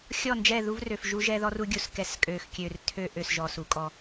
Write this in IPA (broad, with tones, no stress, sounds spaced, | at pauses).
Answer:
xʲ ɔ˦˨ n d͡ʒ ɛ˦˨ ð u˦ v r ø˨ f ʒ u˦ ʒ ɛ˦ ð ɔ˦ r u˦ ɡʲ u˨ s k ɛ˨ s kʼ ø˨ x kʲ ø˨ r tʰ ø˦ ʔ ø˨ s ʒ ɔ˨ s u˨ kʼ ɔ˦˨